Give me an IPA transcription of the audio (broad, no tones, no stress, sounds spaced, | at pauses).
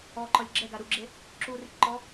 ɔ ǃ ɔ lʲ ɡ͡ǁ ɛ ɡ a ɾ u ɡ͡ǁ e | ǁ u r i ʈ ǃ ɔ